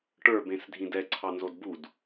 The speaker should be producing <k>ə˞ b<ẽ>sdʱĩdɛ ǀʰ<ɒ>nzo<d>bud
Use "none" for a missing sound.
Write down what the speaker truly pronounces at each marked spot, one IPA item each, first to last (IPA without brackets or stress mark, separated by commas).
ʈ, ẽ, ɑ, d